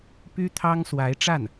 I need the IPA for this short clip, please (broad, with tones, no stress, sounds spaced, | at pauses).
p y˥ t̪ʰ ɑ˥ ŋ s w a˧˥ ɪ̯ ʈ͡ʂ a˥˩ n